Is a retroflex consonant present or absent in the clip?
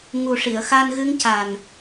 present